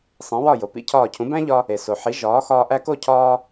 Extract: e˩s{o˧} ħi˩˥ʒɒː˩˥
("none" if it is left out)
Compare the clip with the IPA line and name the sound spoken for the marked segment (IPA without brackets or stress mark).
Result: o˩